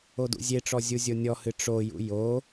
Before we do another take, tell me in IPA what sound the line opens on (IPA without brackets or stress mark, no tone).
o